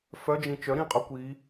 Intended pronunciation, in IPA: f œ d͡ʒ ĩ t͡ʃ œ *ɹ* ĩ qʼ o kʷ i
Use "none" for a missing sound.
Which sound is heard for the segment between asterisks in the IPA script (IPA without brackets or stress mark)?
ɾ